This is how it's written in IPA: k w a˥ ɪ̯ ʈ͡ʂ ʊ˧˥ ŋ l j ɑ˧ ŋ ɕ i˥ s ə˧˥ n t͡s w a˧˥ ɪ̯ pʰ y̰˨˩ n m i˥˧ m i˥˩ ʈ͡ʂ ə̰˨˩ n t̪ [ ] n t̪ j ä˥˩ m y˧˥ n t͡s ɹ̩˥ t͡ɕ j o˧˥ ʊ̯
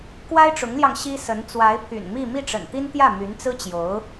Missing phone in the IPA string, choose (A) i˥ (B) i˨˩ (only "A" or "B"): A